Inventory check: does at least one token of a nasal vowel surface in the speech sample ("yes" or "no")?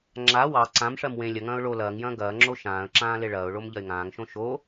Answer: yes